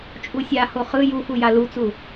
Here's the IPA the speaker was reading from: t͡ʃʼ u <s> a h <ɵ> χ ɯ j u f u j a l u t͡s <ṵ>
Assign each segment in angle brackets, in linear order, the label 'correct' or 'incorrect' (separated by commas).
incorrect, incorrect, incorrect